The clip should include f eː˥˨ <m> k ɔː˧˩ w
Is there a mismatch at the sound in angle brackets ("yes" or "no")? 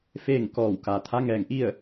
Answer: yes